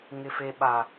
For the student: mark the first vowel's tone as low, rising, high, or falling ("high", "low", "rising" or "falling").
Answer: high